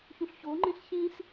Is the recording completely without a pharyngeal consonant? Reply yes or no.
yes